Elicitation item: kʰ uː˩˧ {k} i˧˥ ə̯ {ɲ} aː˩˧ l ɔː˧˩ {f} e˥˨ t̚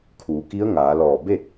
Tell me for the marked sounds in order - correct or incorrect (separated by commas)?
correct, incorrect, incorrect